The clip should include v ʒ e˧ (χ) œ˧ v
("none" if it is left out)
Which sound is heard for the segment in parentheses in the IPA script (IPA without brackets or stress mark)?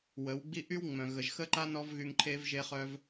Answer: χ